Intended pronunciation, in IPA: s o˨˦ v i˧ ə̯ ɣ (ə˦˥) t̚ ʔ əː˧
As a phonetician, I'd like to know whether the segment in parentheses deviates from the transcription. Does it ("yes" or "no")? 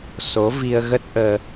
no